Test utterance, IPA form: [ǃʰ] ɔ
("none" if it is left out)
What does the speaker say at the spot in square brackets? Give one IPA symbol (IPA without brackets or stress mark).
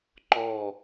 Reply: ǃ